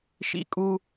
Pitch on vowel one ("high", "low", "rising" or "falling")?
high